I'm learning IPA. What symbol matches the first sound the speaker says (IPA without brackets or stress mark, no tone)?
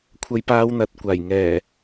kʷʰ